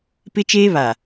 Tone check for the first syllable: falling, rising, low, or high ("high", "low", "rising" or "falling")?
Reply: high